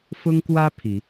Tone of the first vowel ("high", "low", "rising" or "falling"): high